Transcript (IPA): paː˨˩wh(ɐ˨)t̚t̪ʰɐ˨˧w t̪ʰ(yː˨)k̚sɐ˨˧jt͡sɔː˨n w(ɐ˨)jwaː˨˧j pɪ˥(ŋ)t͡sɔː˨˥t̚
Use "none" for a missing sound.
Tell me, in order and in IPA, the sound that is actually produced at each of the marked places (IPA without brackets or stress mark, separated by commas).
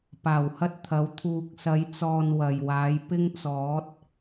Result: ɐ˥, uː˨, ɐ˨, ŋ